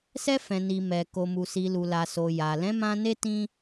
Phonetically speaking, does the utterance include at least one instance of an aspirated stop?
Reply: no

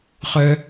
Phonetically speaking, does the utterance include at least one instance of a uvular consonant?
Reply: yes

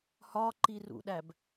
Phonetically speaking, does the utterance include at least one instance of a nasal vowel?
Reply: no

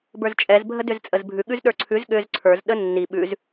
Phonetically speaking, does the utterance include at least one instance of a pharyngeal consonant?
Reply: no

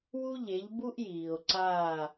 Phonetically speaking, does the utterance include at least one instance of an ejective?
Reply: no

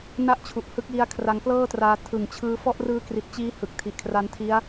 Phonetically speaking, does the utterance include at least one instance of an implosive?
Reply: no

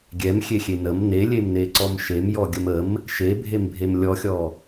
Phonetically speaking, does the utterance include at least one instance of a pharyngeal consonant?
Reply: no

